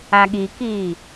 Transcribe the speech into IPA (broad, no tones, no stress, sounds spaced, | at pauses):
a ɠ i k iː